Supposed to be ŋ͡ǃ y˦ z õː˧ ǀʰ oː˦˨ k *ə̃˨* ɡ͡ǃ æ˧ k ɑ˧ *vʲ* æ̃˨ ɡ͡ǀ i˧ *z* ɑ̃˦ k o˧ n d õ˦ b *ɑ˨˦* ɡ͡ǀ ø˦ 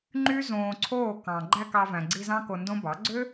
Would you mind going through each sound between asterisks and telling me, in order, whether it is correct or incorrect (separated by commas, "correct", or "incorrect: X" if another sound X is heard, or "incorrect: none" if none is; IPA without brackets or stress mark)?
incorrect: ɑ̃˨, incorrect: v, correct, correct